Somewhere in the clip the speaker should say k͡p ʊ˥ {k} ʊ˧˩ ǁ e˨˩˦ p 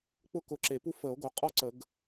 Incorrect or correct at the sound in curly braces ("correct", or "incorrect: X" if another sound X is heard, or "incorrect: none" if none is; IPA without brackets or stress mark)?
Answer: correct